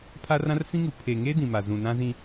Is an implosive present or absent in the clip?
absent